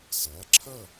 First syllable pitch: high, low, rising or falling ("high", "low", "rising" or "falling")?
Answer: rising